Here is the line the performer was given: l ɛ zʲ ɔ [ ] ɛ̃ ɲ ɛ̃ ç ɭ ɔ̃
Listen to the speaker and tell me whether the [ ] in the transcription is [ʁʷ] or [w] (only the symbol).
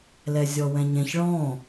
w